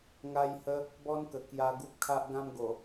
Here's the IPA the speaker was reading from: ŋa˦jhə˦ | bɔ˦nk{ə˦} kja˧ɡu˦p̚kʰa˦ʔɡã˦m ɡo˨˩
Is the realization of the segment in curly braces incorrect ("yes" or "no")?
yes